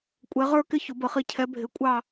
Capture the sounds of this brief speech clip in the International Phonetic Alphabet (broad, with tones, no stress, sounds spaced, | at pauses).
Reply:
kʷʼ ɛ˨˦ ʁ ə˞˥˧ k ɪ˥˧ ç ʊ˨˩˦ b ə˨˩˦ χ i˨˦ cʰ ɛ˨˦ bʱ ɪ˨˦ kʷʼ ɑ˥˧